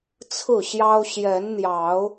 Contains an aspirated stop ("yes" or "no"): yes